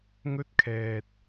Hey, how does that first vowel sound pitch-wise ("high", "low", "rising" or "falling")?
high